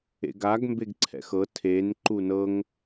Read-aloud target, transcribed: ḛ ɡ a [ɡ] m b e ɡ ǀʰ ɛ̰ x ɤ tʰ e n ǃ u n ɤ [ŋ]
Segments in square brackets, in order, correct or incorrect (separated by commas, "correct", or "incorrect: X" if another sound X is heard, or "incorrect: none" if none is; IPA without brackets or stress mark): correct, correct